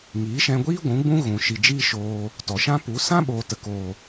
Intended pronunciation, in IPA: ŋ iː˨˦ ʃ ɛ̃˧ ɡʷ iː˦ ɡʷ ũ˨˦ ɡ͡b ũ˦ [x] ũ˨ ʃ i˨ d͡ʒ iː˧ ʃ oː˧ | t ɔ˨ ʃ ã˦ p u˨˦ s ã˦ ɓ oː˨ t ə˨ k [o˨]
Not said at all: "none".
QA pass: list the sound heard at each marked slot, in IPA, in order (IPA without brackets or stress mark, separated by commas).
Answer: ɣ, oː˨